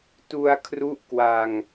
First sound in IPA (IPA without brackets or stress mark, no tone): t